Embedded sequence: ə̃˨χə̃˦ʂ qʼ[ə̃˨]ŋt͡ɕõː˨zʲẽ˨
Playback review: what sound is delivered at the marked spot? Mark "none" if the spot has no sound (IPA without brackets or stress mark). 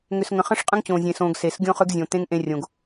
ə̃˦